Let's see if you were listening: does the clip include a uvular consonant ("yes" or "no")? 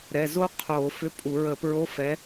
yes